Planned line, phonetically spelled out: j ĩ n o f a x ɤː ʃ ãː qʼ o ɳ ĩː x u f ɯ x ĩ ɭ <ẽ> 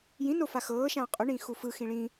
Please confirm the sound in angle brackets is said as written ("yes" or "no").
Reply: no